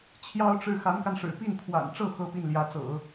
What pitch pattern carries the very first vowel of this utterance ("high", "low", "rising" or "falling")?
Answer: high